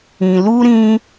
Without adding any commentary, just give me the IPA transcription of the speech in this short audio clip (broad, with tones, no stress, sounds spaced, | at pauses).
ĩ˧ l u˦ ɾ ĩ˦